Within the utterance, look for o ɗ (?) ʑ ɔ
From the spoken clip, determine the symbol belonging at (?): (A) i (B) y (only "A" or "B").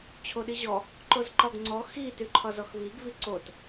A